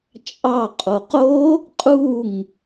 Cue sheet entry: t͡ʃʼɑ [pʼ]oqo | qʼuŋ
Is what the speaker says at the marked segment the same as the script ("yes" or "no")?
no